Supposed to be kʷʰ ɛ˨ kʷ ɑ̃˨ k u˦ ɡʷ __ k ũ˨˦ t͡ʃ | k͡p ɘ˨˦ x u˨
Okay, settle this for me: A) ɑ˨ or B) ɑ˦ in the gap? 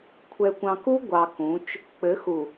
A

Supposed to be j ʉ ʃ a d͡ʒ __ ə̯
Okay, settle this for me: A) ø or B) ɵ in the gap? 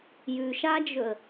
B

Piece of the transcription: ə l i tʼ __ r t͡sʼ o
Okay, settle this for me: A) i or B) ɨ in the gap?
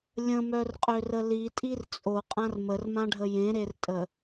A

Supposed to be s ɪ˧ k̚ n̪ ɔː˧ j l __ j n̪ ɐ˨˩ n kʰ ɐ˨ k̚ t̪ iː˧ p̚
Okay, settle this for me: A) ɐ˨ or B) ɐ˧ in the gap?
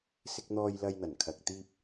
B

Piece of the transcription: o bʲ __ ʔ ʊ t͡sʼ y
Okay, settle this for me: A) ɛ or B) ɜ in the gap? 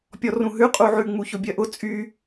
B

